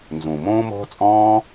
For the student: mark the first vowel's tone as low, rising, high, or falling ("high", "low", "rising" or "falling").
low